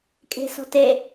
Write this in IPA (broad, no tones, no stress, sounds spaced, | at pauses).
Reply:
kʼ e̤ s ɔ̤ t e